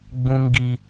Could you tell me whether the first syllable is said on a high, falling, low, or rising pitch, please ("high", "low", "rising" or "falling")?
high